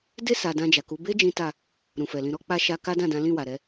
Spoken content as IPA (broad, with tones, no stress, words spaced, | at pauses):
de˦ sa˧ dã˧d͡ʒa˨ku˨˦ be˦ d͡ʒĩ˦ta˦˨ | ɾũ˨fɛ˨lĩ˧ ɾɔ˦k͡pa˦ ʃa˦ ka˦dã˦˨dã˨˦ lĩ˦˨wa˨ɾɛ˧